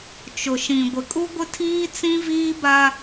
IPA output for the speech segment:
t͡ʃʊ˨ʃĩ˨ ɡʷɪ˨kʼu˦ɡʷɪ˦tʰiː˦ t͡sĩ˦viː˦ba˦

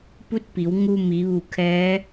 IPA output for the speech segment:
pu˧˥t̚pi˩˧w ŋu˧mi˩˧ ʋu˧˩kʰɛː˧˥

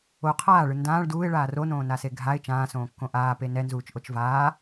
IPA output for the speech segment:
o qʰaːɭɯ ndãːɭ duːɪ̯ɭaː ronõːnase ɡʱaɪ̯ t͡ʃãːsõːkːõ ʔaːpe nɛnzuːt͡ʃʔot͡ʃ vaː

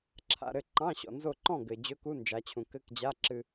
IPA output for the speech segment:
ǁʰa̰˧ɾɘ˥˨ ǃɑ̃˧˥˧ ɕɔ̰˩ nzo˥˨ ǃɔ̃˥˨ ɡɘ˩ d͡ʑɵ˧˥˧ku˧˥˧nd͡ʒa˩˧t͡ɕʰũ˩ kɘ˧˥˧kd͡ʑa˧˥˧ǁɨ˧

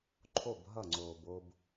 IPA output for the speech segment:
ǃʰo˦˨bɦʌ˦˨ŋ͡ǀoː˨b o˨b

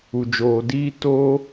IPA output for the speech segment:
u˨d͡ʒoː˨diː˧ to˦

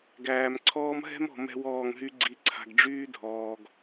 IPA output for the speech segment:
ɡæː˨mǀʰɔː˦m ɦɛ̤˦mɔ̤˨ mɛ̤˦wɔː˦˨ŋɦy˦ ɡ͡ǀi˨ǀʰa̤˨ɡ ɖ͡ʐyː˦dʱɔː˨ɡ

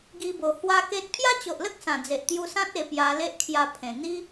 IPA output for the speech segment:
ɡi˧bo˨˩ hwa˦ke˦t̚ pʰja˦t͡ɕo˨ʔlə˦k̚ sã˨˩d͡ze˨ʔt̪ju˧sã˦t̚ e˧pja˧ le˦ʔkʰja˧pʰẽ˨˩ n̪i˦

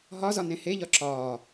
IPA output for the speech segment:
ɦɒzɒ nẽheʎɒ ǁɒː

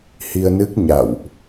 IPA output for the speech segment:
hi˧ə̯nɨ˦˥k̚ ɲa̰˧˨wʔ

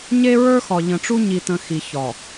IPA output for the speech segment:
ɲe˦ɹə˞˦xɒ˨ʎə̃˨ ʈ͡ʂu˦ ɲi˨tə̃˨ xi˨çɒ˨

